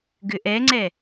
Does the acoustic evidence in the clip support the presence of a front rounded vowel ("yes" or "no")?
yes